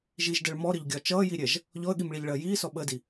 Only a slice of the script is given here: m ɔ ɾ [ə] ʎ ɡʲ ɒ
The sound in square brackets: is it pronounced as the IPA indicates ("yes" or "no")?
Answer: yes